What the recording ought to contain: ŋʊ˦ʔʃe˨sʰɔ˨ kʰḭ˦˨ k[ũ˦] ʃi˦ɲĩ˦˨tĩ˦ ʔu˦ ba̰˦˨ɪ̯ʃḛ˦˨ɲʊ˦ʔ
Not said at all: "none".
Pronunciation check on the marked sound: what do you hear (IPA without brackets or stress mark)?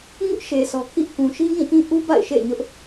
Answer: ũ˨